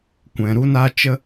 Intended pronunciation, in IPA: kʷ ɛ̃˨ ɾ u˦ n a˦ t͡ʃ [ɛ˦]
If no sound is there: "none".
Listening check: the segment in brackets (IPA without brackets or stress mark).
ə˦